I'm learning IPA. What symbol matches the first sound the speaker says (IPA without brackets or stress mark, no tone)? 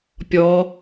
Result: pʲ